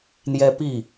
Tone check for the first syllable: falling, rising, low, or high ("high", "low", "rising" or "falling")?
high